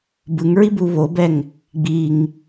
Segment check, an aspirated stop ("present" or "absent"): absent